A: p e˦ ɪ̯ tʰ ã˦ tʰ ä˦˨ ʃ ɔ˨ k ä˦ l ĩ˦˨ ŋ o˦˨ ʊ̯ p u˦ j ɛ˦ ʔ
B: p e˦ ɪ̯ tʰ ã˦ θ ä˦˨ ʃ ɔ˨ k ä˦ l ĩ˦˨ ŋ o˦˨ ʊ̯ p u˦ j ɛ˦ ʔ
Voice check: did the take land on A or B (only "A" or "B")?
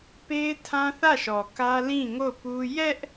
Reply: B